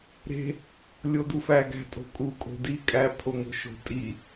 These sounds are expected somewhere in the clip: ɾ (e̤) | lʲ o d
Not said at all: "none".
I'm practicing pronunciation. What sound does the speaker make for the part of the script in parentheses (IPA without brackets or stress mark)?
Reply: e̤